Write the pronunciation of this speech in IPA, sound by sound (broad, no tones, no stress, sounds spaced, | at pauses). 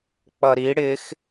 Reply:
k͡p ʌ ɾ i ɽ ɪ x